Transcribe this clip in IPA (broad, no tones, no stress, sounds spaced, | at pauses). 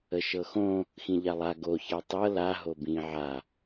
ə ʃ ɤ x õ | x ĩ ʎ a lˠ a ɡ o ç a tˤ ɤ l a ɦ o b ĩ ʕ a